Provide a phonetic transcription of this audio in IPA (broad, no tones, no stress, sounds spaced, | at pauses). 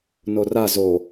n o r a z o